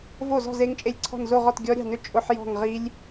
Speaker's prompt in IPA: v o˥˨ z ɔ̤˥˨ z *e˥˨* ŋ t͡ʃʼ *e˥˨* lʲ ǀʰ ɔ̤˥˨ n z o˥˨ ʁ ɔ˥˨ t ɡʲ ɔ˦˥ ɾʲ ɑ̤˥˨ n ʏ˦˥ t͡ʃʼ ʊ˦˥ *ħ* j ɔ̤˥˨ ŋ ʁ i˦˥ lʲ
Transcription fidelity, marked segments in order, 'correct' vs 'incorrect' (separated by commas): incorrect, correct, correct